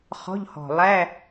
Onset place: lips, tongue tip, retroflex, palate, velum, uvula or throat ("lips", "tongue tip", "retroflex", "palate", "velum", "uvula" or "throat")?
uvula